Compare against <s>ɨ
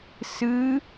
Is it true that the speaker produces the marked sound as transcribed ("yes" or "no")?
yes